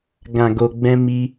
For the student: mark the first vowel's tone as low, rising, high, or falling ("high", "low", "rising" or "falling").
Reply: low